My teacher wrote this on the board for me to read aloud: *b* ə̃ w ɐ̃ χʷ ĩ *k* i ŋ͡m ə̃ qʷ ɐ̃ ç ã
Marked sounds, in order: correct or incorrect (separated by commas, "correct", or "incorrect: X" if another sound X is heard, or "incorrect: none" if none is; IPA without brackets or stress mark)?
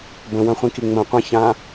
correct, correct